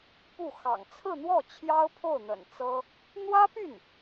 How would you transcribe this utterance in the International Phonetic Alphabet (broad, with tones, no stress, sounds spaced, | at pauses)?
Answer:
p u˥˩ x ɑ̰˨˩ ŋ t͡sʰ ɹ̩˥˧ n̪ w ɔ˥˩ t͡ɕʰ j ɑ˥ ʊ̯ pʰ o˥˩ ʊ̯ n̪ ə̰˨˩ n t͡s ɤ˥ | n̪ w ä˥ p y˥˩ n